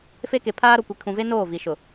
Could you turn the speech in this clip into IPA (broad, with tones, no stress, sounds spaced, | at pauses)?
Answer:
f e˦ k e˨ pʰ aː˦ ɾ o˨ kʷ i˨ kʰ ũ˨ v e˦ n oː˦˨ v i˨ ʃ ʊ˨